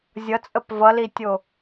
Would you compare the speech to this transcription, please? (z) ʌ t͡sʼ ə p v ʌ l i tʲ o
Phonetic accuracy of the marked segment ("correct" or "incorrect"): incorrect